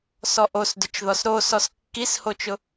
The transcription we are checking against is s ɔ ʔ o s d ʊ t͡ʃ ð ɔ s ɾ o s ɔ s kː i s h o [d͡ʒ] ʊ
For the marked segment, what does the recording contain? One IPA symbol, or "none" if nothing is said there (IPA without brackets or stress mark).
t͡ʃ